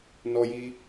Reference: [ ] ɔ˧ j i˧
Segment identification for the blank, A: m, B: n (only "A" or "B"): B